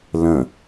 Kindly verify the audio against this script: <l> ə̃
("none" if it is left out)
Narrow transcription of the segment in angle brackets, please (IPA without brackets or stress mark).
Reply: l